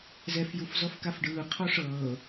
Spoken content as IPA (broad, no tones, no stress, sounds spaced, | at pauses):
z ɛ f j u f z ɔ f k a f ɖ ɯː qʰ ɔ ʂ ɤː